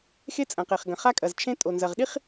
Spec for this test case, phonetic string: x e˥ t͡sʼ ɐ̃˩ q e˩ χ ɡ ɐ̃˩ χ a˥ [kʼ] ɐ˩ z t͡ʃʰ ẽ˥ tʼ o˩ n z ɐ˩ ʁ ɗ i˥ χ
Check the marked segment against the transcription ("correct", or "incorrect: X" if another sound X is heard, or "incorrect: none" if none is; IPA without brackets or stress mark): correct